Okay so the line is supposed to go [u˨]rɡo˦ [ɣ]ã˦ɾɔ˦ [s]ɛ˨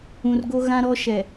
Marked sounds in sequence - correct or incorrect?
incorrect, correct, incorrect

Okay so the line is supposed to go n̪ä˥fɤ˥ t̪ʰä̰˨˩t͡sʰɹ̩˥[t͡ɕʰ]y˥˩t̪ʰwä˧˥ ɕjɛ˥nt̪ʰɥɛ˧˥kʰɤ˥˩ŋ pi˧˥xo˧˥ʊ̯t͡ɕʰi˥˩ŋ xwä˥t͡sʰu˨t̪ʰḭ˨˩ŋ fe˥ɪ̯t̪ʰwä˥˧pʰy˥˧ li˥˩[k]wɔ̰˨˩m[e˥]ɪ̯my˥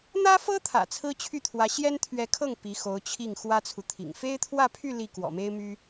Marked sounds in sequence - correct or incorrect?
correct, correct, correct

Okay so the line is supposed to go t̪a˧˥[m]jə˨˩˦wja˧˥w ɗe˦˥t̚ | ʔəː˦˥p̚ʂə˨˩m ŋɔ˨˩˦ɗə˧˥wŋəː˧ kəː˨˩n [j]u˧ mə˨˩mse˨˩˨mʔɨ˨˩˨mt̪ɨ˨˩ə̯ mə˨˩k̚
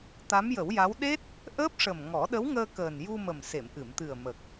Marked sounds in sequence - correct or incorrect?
correct, correct

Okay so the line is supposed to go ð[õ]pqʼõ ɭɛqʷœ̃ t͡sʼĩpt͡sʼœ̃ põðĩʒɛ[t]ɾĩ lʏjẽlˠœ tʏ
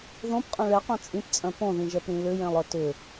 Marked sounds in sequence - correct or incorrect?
correct, incorrect

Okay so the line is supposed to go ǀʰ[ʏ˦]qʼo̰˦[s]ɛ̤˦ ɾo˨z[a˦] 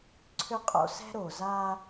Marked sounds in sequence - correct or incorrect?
correct, correct, correct

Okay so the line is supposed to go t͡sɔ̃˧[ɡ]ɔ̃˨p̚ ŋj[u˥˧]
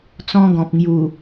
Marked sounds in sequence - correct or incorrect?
correct, incorrect

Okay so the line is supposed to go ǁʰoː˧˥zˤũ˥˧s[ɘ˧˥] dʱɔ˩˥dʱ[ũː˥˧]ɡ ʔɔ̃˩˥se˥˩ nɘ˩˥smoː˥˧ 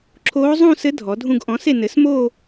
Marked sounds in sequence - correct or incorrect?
correct, incorrect

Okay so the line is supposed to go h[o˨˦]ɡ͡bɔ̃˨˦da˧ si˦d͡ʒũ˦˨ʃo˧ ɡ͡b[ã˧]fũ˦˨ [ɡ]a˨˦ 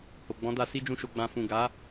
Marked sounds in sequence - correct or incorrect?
incorrect, incorrect, correct

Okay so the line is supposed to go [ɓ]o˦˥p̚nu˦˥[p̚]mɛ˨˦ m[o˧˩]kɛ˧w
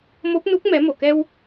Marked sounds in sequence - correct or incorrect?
incorrect, incorrect, correct

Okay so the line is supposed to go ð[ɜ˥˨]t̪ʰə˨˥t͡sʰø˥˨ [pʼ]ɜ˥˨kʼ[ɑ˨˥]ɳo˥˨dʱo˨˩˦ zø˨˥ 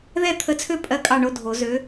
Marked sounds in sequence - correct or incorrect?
incorrect, correct, incorrect

